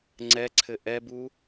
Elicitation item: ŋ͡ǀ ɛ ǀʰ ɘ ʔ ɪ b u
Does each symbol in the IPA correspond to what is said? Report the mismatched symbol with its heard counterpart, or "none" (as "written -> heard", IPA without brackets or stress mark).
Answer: ɪ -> ɛ